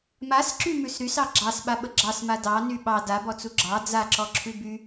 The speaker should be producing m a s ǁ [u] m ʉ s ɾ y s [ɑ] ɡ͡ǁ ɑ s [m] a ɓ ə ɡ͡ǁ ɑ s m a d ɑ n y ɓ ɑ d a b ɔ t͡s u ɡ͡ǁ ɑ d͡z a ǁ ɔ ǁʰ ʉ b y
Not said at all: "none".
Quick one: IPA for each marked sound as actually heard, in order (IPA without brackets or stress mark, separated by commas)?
y, ɑ, ɓ